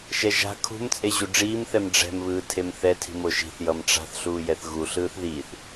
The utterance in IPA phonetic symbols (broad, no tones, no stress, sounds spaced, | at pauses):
ʃ ɛ ʒ a̤ kʰ ṳ m t͡sʼ e ʑ u ɖ͡ʐ iː m θ ɛ m ɖ͡ʐ ɛ̤ m β ɯː tʰ e m θ ɛ tʰ i̤ m o ʃ i̤ θ j ʌ m ʈ͡ʂ a̤ θ ɬ uː j ɛ θ ɣ u ɬ ɯː θ ð iː θ